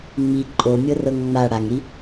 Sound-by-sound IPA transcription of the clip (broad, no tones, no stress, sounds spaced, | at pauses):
ŋ͡m i ǃʼ o mʲ ɤ r ɤ ŋ ŋ͡m a ɽ a ŋ ɾ i